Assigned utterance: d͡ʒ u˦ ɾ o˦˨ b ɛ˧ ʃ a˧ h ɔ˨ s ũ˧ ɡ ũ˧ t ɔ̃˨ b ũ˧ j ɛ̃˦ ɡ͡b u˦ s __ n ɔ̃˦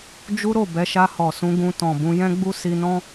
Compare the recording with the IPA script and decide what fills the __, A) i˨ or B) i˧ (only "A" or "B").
B